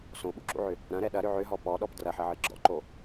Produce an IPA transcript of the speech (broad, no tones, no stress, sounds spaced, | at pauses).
s õ ɓ ṵ ǁ ṵ ʕ ʏ | ɾ ɐ̃ ɾ ɛ ɗ ɐ ɾ ʏ ʕ ʏ ɦ ɔ p ɔ ɗ ɔ p d r ɐ ħ ɐ ʕ ɨ ɡ͡ǁ ɔ̰ ǃ o